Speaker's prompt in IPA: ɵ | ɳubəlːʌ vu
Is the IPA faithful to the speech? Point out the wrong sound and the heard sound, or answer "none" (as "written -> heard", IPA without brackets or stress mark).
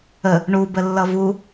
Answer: ɵ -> ə